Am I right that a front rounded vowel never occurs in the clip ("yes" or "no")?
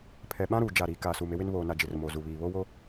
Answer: yes